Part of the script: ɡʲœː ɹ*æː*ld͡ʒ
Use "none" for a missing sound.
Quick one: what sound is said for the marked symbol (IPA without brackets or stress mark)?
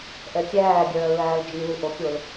æː